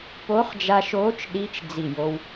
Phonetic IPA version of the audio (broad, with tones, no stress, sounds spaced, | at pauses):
p o˧˥ χ d͡ʒ a˧ ʃ oː˧˥ t͡ʃ ɗ i˧˥ t͡ʃ d͡z i˧˩ j o˧ w